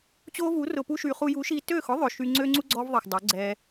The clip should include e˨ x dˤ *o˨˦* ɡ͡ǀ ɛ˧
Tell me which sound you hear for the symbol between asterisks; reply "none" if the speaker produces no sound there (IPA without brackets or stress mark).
o˨˦